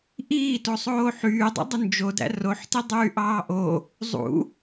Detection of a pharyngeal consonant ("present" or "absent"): present